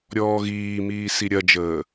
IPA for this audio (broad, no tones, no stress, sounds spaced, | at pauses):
ɾʲ ɔː ɣ iː m iː s i ɾʲ ɐ d͡ʒ əː